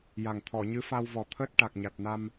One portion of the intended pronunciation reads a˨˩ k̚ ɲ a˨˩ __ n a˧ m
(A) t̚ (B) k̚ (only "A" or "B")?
A